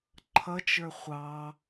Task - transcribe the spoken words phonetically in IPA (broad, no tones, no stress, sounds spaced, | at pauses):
ǃʰ ʌ t͡ʃ ə˞ χʷ ɑ